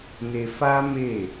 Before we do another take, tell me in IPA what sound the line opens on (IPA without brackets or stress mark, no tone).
n